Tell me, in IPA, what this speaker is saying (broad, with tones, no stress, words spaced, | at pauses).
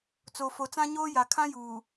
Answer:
t͡so˨fo˨t͡sã˦ɲoː˦ ja˨kʰã˦juː˨